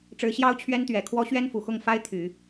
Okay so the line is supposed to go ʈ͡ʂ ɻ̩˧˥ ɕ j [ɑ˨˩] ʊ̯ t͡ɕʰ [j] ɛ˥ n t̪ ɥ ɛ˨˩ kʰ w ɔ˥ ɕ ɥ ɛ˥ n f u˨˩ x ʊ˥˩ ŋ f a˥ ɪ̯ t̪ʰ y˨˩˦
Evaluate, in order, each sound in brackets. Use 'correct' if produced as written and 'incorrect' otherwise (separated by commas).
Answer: incorrect, incorrect